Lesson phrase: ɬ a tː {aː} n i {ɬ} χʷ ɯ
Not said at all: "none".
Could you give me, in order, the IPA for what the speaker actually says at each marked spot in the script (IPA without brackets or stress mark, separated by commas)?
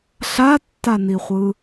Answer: a, none